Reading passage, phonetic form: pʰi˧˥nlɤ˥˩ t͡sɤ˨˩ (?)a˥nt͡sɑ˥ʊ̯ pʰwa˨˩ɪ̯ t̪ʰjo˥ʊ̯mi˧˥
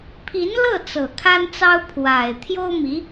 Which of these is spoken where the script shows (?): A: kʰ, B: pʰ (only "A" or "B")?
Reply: A